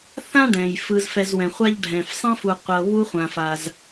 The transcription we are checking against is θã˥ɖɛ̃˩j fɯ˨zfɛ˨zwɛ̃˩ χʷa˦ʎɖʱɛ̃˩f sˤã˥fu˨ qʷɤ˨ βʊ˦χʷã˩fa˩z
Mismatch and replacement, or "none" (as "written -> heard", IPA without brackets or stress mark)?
ʊ˦ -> u˦